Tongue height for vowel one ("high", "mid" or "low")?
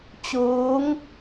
high